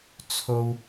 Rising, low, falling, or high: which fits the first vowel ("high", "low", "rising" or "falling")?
high